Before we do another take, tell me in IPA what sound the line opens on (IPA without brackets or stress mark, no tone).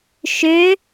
ʃ